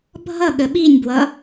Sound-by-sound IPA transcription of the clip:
bʱ ʌ ɠ ə ɓ i nʲ b w ʌ

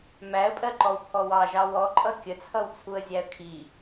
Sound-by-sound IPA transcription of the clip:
m æ ə̯ pʼ ɜ ǃ ɔ w pʰ ɔ w ɑ ʒ ɑ w ɔ ǃʼ ʌ kʲ ə t͡sʰ ʌ w t͡sʰ u ə̯ zʲ æ ə̯ kʰ i

